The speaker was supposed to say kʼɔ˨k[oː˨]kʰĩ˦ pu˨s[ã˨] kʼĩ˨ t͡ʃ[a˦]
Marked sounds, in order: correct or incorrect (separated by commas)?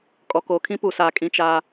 correct, incorrect, correct